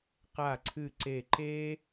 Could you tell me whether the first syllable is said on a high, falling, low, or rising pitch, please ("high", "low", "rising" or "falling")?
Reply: falling